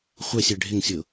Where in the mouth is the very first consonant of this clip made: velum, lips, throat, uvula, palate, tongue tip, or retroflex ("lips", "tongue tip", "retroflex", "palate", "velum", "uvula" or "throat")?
uvula